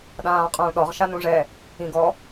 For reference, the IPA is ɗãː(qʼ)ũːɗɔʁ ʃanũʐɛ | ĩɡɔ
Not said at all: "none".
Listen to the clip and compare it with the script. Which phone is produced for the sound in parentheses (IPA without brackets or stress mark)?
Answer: qʼ